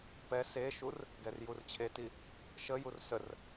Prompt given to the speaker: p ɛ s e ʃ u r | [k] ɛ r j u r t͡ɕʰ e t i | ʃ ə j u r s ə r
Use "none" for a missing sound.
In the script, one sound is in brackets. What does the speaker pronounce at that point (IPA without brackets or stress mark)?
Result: ɡ